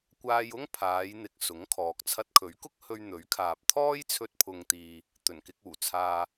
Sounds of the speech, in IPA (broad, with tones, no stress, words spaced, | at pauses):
kʷaː˧jʊ˥ŋpʰaː˨˧jn̪ɪ˨k̚ sʊ˨˥ŋkʰɔː˨k̚ t͡sʰɐ˧t̚kʰɵ˨˥ɥkʊ˥k̚ hɵ˧ɥn̪ɵ˨˥ɥkʰaː˨p̚ t̪ʰɔː˥jt͡sʰɵ˧t̚pʰʊ˨ŋt̪iː˨ | t̪ɵ˨˩nkɪ˧k̚uː˨˩t͡sʰaː˧